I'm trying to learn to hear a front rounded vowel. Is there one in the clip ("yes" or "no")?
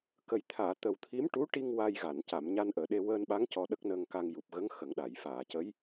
no